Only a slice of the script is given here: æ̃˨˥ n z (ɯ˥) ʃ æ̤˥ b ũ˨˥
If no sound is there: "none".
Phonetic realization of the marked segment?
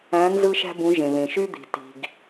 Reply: ɯ˥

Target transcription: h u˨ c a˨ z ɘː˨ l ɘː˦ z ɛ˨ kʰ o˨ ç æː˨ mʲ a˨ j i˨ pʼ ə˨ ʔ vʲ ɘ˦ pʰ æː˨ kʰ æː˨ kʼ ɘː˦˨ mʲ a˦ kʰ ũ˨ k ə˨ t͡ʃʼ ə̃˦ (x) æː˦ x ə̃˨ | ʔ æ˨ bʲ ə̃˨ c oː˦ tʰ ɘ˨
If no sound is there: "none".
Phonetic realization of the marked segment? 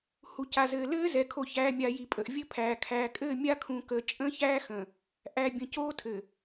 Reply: ç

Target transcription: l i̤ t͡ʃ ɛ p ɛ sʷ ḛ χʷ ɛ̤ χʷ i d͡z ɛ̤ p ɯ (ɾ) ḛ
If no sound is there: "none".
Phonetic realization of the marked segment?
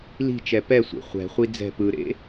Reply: ɾ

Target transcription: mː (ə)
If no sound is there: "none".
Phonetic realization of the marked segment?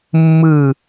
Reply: ɯ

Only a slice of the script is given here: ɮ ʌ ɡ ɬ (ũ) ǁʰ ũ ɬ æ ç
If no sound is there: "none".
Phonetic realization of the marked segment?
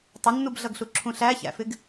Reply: u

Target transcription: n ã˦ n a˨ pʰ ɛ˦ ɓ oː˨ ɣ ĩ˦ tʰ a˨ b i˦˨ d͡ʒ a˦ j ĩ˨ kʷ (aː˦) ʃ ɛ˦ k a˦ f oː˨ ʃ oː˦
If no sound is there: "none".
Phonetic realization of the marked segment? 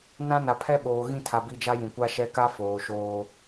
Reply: a˦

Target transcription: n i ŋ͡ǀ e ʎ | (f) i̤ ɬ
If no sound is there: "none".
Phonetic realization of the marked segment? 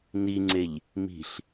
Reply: m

